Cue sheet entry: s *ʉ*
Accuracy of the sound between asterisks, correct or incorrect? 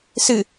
incorrect